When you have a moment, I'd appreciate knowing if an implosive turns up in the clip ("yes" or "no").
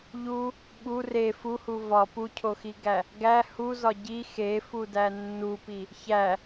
yes